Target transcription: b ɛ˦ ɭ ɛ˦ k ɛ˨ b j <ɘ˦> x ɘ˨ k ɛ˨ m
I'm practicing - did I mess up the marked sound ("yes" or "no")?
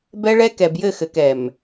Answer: yes